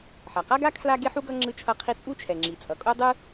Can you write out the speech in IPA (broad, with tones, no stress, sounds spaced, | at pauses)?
ħ a˩ q a˥ ɡ a˥ kʰ l a˥ ɡ e˥ ħ u˥ ɡ ʌ˥ ŋ͡ǁ ɯ˥ t͡ʃʰ ʌ˥ qʰ i˥ t͡sʼ u˥ t͡ʃʰ ɛ˩ ŋ͡ǁ i˩ t͡sʼ ʌ˩ kʼ o˥ dˤ ɯ˥